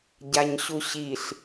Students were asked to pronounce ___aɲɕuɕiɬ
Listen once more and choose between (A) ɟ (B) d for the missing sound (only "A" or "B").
A